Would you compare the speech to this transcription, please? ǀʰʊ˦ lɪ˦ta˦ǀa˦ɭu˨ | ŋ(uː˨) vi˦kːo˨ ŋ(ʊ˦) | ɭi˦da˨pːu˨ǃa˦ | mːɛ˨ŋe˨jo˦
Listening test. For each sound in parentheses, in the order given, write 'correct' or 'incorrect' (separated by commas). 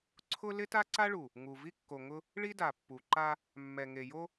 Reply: incorrect, correct